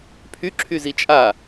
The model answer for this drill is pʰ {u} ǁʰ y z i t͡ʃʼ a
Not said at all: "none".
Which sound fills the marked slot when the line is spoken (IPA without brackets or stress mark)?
y